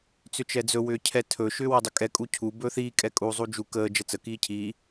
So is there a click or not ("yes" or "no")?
no